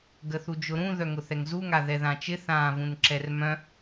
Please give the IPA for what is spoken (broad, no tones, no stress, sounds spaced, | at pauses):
ɡ ə θ u d͡ʒ ʊ ɾ ũ ð œ ŋ ʊ θ ɛ ŋ z u ŋ a ð ɛ ð ã t͡ʃ ɪ θ ãː v ũ n ǁ ɛ r m œ̃